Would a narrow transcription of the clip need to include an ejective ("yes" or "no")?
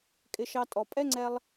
yes